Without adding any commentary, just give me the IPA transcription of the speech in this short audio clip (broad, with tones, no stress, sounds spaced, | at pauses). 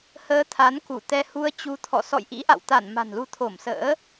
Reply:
h əː˨˦ t̪ʰ a˨˦ n k u˧˩ t̪ ɛ˧ h u˧ ə̯ t͡ɕ u˨˦ t̪ʰ ɔ̰˧˨ s ɔ̰˧˨ j ʔ ḭ˧˥ ʔ a̰˧˨ w t̪ a˧˩ n m a̤˨˩ n l u˨˦ t̪ʰ o˧˩ m s ə̰ː˧˥